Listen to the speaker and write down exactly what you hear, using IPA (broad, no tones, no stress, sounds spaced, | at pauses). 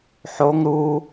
ħ o ŋ ɾ u